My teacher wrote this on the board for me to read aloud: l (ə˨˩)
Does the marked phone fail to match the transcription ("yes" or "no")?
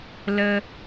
yes